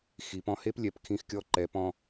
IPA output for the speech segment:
x i˩˧ p ɔ̃˧ h e˥ p lʲ ɛ˩˧ p kʰ ĩ˧ x kʲ ɔ˧˥ ǃ ɛ˩˧ p ɔ̃˧

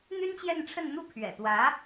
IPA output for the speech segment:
n̪ y˥ n t͡ɕ j ɛ˥˧ n ʈ͡ʂʰ ə˥˩ n n̪ u˥ pʰ ɥ ɛ̰˨˩ t̪ w ä˧˥

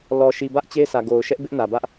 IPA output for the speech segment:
l ɔ˨ ʃ i˨ b ä˦ ʔ t͡ɕ e˦ sʰ ä˨ ɡ o˨ ʊ̯ ʃ ɛ˦ ʔ b ɪ˦ ʔ n ä˨ b ä˦ ʔ

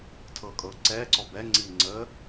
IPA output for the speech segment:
tʰ ɤ kʼ ɤ ǀ ɛ ǀ ɔ b ɛ ŋ͡ǀ i ŋ͡ǀ ə

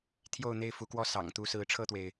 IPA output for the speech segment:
t̪ʰ j o˥˨ ʊ̯ n̪ e˥˨ ɪ̯ f u˨˦ k w ɔ˥˨ s ɑ̰˨˩ ŋ t̪ u˥˨ s ɹ̩˨˦ ʈ͡ʂʰ ɤ˥˨ t̪ w e˩ ɪ̯

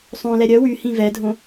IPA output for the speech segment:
sˤ õ l ɛ ɾʲ œ w y h ĩ v ɛ dʱ õ

